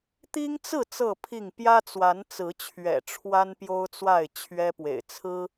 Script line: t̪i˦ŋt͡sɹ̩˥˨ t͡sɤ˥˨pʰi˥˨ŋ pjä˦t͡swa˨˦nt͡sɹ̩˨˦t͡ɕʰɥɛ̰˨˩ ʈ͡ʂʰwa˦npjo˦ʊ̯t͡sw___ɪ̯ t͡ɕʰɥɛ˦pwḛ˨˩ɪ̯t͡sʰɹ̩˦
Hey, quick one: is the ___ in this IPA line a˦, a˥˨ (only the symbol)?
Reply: a˥˨